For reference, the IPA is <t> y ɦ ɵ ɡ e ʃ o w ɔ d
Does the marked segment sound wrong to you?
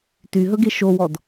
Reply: no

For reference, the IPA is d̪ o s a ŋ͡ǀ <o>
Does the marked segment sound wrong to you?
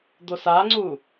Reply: yes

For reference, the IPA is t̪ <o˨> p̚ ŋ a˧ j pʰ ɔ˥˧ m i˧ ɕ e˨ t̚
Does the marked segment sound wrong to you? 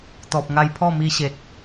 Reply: yes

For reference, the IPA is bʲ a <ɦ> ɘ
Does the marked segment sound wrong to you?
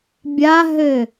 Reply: no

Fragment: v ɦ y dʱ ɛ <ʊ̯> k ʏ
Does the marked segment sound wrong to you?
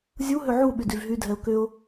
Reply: no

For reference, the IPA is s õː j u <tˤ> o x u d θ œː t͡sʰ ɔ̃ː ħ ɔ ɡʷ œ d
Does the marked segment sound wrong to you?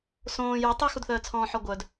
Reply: no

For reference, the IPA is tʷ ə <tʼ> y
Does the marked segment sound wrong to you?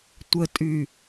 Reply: no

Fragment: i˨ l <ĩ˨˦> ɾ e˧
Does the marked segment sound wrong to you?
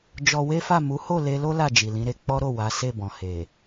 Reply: no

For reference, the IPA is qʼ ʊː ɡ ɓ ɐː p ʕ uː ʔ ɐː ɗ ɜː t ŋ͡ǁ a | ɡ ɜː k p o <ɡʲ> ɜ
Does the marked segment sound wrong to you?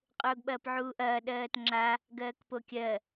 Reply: yes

